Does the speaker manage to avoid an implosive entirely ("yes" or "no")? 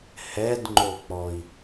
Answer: yes